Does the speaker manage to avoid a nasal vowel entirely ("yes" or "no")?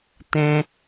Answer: no